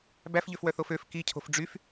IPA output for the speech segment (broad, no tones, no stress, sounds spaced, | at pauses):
b æ f ʎ ø f w œ θ o f ø f k i cʰ o̤ f ɖ͡ʐ y f